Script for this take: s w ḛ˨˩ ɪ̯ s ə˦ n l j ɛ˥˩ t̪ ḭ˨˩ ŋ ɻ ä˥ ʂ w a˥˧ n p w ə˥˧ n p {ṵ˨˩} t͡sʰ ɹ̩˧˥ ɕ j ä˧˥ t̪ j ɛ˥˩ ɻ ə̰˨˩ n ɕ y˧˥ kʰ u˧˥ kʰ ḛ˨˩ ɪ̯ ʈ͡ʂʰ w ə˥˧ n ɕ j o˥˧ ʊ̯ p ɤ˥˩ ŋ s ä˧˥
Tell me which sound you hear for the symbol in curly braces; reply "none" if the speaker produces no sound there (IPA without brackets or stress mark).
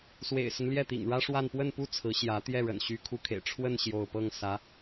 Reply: u˥˩